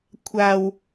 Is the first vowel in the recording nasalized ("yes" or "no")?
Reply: no